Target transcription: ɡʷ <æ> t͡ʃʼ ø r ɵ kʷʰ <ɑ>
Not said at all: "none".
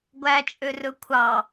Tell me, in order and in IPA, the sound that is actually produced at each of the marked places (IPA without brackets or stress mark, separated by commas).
æ, ɑ